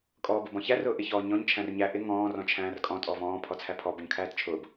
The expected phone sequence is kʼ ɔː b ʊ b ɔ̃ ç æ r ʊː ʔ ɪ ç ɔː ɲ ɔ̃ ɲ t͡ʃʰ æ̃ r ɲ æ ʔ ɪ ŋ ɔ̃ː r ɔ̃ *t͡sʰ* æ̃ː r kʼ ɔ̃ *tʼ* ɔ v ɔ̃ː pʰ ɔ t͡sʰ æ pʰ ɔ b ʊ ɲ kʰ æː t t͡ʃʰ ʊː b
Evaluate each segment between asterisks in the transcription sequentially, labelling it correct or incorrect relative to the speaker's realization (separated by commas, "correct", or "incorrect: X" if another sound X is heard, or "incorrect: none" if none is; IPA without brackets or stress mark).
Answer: incorrect: t͡ʃʰ, correct